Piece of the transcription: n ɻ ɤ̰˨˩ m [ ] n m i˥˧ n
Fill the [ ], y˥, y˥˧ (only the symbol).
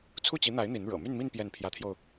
y˥˧